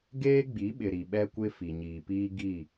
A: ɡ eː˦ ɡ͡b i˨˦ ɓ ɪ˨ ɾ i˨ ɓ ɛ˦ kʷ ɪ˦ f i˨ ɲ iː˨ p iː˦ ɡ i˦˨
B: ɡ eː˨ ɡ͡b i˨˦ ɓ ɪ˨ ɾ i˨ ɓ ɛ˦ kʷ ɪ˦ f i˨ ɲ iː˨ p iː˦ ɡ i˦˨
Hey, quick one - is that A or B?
A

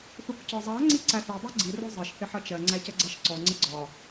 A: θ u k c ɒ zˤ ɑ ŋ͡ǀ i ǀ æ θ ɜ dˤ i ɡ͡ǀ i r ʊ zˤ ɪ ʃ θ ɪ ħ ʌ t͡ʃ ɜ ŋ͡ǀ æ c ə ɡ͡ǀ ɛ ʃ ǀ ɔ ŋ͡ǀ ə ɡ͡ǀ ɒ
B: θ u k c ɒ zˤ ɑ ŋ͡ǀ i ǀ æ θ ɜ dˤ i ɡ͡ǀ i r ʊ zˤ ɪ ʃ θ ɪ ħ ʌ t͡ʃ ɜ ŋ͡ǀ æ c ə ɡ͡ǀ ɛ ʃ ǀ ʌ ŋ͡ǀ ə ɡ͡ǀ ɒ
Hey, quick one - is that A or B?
A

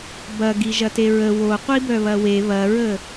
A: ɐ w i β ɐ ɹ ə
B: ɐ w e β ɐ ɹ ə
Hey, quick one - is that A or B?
B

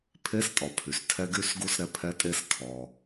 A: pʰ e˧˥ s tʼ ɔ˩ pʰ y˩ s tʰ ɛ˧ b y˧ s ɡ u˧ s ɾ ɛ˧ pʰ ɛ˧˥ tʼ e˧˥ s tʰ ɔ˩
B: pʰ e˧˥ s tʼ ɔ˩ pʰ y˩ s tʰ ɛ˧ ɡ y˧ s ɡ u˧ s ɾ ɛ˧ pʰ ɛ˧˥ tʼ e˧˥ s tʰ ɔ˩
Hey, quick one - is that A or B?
B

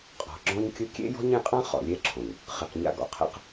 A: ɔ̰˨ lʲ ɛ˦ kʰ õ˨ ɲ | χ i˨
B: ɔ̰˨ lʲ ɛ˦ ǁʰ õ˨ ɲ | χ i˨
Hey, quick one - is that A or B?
B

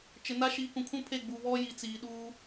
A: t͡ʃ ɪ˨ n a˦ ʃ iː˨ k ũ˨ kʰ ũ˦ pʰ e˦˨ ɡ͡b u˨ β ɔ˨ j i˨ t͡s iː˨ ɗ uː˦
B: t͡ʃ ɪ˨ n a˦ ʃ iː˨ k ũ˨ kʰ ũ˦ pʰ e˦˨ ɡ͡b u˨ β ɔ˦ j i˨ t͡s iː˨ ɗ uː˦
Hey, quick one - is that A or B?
B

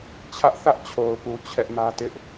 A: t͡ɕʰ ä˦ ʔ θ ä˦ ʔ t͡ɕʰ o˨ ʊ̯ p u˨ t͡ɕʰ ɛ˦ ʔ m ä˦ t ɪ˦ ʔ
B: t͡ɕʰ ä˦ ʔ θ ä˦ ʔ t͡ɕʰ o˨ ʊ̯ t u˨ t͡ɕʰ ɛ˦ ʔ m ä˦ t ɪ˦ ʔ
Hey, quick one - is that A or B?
A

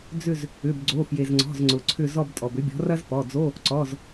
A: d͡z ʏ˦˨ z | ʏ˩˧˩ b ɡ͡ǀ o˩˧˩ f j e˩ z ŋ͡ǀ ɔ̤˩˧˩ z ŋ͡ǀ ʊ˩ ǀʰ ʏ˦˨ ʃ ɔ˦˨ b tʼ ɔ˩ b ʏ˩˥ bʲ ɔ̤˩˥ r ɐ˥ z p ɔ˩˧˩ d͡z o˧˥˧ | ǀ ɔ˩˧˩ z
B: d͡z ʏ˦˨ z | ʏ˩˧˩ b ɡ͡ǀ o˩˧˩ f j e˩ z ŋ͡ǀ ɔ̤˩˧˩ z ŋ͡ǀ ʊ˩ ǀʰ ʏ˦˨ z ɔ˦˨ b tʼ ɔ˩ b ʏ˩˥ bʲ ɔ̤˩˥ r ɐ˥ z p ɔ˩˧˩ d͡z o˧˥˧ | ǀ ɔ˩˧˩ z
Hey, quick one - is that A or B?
B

